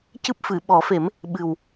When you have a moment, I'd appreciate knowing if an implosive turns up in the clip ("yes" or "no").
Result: yes